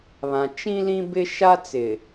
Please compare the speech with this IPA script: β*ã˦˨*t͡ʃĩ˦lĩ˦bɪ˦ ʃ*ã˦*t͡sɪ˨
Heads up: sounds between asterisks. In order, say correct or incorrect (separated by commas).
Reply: incorrect, incorrect